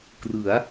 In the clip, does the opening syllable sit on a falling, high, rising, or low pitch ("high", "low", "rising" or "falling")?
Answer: rising